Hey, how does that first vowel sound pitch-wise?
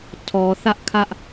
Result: low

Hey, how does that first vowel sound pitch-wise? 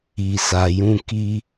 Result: low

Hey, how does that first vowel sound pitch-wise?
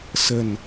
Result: low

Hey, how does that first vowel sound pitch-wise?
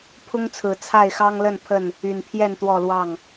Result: high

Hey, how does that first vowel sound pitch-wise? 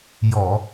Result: low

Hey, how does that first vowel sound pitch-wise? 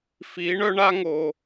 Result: rising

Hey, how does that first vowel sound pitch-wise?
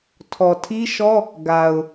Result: low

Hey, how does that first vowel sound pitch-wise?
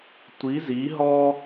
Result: rising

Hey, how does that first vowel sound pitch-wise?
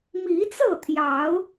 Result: rising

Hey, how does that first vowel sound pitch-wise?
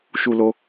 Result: low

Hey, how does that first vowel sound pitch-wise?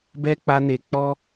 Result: high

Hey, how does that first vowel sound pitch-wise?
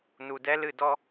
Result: low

